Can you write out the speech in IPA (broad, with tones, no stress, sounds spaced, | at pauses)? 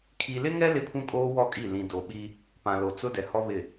kʰ i˨ l ɪ˦ ŋ ɛ˦ l ɪ˦ pʰ ũ˦ kʼ oː˦ w ɔ˦˨ kʼ i˦˨ l ĩ˨ d o˨ ɓ i˦ | p ã˨ l o˨ t͡s ʊ˦ d ɛ˨ h ɔ˦ β ɪ˦˨